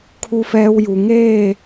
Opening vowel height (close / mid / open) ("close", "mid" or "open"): close